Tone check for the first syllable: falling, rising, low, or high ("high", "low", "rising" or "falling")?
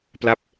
falling